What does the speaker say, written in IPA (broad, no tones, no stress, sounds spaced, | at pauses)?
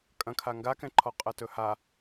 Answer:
kʼ ɐ̃ kʰ a ŋ ɡ a k ɛ̃ ǃʰ ɔ qʼ ɐ t ɵ h a